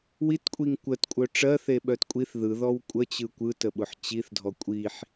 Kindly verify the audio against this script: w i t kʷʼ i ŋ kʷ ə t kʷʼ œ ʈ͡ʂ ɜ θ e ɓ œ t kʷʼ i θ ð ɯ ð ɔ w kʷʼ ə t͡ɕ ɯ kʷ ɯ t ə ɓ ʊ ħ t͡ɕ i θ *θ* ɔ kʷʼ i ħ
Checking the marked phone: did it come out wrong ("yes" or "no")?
yes